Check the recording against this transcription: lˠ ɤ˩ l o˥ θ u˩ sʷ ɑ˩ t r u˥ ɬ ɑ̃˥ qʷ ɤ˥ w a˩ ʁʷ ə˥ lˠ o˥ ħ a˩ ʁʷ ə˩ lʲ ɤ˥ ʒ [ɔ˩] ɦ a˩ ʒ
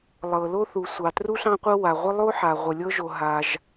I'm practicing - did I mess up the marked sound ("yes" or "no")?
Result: yes